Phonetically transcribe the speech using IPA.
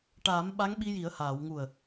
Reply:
ʈ aː˨˩˦ m ɓ a˧˥ ŋ ɓ i˧ j i˨˩˦ ə̯ h aː˨˩˨ w ŋ u˨˩ ə̯

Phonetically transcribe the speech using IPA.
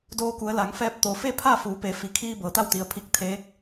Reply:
d oː˧ k u˩˧ ə̯ l a˩˧ ŋ f ɛː˧ p̚ t̪ o˩ f e˥˨ pʰ a˥˨ f uː˩˧ p e˩˧ f i˩˧ kʰ iː˧ b ɤː˩ t̪ a˥˨ w t̪ i˩ ə̯ pʰ i˧˩ k̚ t̪ʰ eː˧˥ k̚

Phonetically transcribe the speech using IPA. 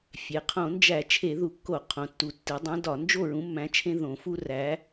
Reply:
fʲ e˩˧ qʰ õ˧˩˧ n d͡ʒ æ˧˩˧ t͡ʃʰ e˧˩˧ ð u˨˩ kː o˧˩˧ qʰ õ˩˧ tː u˨˩ tː i˩˧ dˤ ẽ˨˥ d ɒ˧˩˧ n d͡ʒ o˥˨ ɹ ũ˨˥ mː æ̃˨˥ t͡ʃʰ ẽ˦ ð õ˧˩˧ f u˦ r æ˨˥

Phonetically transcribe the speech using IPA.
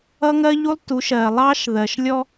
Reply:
ʌ˦ ŋ ɜ˦ ʎ u˦ lˠ t u˨˦ ʃ ɜ˨ lˠ ɑ˦ ʃ ð ɜ˨ ʃ lʲ ɔ˦

